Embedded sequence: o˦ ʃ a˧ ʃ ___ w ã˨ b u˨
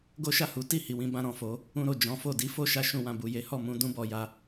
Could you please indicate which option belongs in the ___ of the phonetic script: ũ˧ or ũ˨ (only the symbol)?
ũ˧